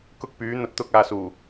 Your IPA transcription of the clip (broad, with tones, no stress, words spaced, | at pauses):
kʊ˥k̚pyː˨˥ n̪ɐ˨t̚t̪ʊ˧k̚aː˨ suː˨˩